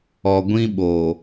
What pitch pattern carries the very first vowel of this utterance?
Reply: low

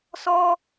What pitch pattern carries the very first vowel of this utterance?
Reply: high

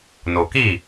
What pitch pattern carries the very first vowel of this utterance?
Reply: low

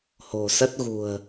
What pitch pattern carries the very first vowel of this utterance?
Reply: low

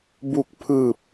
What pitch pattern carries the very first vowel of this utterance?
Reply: low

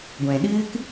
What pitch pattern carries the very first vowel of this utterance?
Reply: low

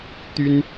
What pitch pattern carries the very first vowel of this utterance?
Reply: high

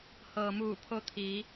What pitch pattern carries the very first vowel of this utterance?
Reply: low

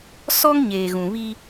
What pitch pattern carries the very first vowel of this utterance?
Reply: high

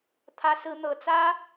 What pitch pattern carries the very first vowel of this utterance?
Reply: high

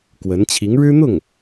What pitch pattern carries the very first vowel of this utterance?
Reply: rising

